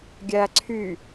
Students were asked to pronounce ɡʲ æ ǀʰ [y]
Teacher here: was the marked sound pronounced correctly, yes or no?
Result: yes